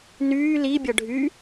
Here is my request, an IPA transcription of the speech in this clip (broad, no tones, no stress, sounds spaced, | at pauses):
n yː l i bʲ ʌ ɖʱ y